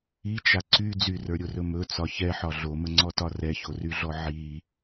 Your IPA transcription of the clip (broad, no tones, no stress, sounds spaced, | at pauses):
i t͡ʃ a ǀ y d͡z y r ə˞ ɾʲ o r ɵ m ɵ t͡s ɒ ç ɛ ħ ɒ ɮ o m ə ŋ͡ǀ ɔ t ɒ r ɛ ç o r y ɮ ɔ ʕ i